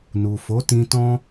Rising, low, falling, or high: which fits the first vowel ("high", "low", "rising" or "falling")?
low